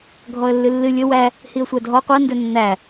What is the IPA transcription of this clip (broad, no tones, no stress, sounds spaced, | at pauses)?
ɡʱ ɔ ə̯ lː ɨ lː ɨ lʲ ɵ w æ | h i ə̯ sʷ æ dʱ ɔ qʷ ɜ n d ɵ nː æ